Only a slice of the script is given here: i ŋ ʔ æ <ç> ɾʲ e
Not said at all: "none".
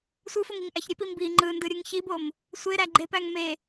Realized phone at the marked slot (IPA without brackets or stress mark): ç